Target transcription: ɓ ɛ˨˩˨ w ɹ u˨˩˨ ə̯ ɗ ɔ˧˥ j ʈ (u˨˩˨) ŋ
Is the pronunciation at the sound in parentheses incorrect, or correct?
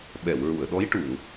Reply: correct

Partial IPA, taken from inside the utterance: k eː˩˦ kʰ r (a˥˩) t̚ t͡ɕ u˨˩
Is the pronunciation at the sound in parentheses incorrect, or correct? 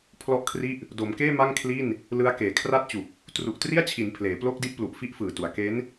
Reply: correct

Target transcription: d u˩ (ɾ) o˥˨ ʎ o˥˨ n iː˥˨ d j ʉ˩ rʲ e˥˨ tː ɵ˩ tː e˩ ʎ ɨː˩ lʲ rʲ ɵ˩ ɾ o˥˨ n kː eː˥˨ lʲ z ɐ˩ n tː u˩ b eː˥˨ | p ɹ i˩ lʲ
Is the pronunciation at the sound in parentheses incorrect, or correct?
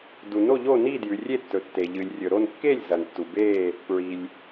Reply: incorrect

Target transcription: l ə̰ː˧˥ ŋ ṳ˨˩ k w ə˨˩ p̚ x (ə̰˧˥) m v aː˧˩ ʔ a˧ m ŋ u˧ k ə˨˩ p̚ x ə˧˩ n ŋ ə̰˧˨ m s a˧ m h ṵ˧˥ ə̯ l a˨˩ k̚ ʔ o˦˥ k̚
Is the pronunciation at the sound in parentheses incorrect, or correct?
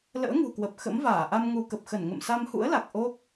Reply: correct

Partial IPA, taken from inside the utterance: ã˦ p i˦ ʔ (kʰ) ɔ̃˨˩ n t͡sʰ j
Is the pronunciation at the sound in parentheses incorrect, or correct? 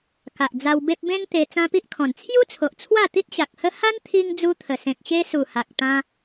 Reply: correct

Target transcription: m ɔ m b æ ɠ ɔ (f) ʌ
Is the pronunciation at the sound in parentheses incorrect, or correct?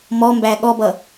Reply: incorrect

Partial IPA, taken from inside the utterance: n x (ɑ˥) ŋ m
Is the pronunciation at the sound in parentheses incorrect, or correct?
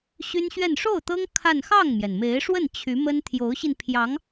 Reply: incorrect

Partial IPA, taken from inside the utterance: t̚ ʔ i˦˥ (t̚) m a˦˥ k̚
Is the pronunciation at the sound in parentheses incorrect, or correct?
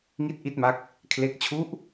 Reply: correct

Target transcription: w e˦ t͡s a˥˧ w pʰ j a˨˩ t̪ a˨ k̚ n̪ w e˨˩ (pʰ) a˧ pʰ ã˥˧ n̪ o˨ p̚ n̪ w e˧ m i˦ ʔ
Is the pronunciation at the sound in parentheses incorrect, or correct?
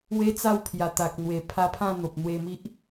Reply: correct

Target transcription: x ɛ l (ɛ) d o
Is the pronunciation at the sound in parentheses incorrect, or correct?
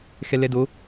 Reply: correct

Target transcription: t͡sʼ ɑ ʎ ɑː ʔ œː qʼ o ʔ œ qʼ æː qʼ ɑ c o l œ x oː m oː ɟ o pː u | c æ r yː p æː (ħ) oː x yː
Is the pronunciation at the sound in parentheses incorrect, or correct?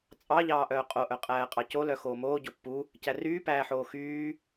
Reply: correct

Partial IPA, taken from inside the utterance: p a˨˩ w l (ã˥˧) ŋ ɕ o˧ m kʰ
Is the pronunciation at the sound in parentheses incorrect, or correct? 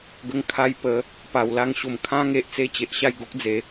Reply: incorrect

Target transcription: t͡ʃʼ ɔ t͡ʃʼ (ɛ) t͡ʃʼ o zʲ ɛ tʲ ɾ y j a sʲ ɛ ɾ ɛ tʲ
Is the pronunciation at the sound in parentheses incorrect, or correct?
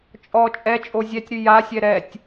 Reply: correct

